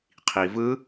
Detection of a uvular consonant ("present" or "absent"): present